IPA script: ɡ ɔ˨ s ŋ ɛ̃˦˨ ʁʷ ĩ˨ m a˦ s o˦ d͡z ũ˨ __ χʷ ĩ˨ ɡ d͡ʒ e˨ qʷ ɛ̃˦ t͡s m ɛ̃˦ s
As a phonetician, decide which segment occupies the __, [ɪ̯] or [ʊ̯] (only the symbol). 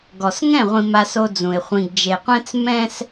ɪ̯